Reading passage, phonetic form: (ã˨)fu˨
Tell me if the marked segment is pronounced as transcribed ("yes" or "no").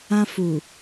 no